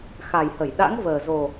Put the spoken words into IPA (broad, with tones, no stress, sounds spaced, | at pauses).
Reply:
x a˨˩ j h ə˧˩ j ɗ a̰˧˥ ŋ v əː˨˩ z o˨˩